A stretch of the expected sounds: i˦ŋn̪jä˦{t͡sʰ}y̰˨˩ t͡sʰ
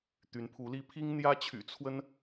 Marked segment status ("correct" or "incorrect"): incorrect